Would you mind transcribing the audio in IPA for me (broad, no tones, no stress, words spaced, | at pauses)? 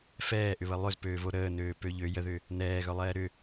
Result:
fɛːʔʏβə lˠʏzpøːvo ɾəːnøːpø ʎø jəðʏ | nɛːɣœlˠɛː ɾʏ